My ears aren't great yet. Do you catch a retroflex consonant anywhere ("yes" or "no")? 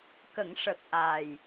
yes